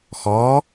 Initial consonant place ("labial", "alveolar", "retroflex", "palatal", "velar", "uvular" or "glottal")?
velar